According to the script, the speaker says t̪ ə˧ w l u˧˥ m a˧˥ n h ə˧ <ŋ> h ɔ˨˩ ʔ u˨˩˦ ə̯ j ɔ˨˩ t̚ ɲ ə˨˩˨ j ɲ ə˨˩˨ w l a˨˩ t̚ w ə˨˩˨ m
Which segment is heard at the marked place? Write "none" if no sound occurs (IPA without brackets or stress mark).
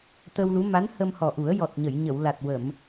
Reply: m